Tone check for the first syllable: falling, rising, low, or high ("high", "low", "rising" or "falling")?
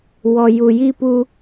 low